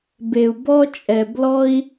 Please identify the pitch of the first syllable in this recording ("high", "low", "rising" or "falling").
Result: low